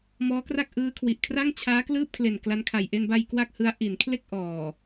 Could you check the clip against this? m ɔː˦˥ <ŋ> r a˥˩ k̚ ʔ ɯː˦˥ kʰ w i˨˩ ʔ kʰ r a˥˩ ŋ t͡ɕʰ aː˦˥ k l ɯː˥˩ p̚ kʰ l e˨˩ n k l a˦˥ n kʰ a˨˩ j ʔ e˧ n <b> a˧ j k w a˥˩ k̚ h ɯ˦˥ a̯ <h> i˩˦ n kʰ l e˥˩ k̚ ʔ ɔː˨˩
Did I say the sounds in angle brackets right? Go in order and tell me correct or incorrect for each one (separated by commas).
incorrect, correct, incorrect